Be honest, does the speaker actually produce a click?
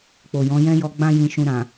no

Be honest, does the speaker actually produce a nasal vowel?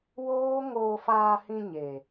yes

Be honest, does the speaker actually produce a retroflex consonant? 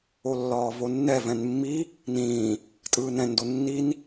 no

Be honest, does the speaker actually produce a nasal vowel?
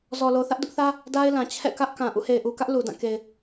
yes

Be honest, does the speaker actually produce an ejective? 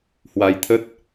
no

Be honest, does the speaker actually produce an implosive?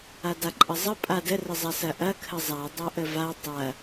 no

